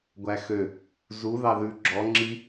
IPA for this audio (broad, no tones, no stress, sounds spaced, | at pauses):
ɡʷ æ x ø | z u ð ɑ ð ʉ ɡ͡ǁ ɔ ŋ͡ǁ i